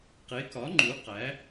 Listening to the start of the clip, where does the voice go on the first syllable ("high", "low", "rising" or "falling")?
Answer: rising